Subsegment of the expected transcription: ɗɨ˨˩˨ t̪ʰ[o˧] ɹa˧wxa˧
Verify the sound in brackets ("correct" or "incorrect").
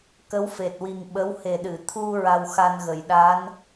incorrect